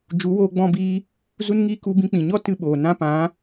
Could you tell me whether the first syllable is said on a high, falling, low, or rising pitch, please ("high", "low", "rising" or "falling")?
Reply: rising